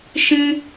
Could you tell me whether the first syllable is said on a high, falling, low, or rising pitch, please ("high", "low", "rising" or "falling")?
high